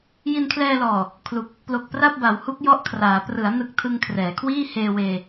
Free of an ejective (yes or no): yes